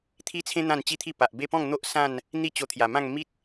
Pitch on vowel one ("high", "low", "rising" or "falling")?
high